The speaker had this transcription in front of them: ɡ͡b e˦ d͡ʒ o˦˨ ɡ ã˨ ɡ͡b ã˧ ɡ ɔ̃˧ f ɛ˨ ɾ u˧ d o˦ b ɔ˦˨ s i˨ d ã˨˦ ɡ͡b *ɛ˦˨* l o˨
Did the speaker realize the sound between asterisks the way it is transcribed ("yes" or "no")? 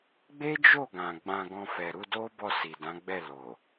yes